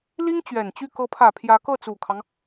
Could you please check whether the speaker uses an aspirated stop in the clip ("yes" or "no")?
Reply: yes